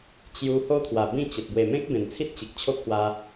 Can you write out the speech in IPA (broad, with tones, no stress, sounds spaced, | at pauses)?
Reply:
t͡ɕ j u˧ h o˦ t̪ʰ w a˨˩ b ĩ˥˧ t͡ɕ ə˨ t̚ b w e˨˩ m ẽ˦ k̚ b ẽ˨˩ n t͡sʰ i˦ t̚ t͡ɕ i˨ k̚ t͡ɕʰ o˦ k̚ h w a˧